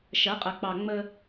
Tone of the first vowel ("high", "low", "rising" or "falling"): rising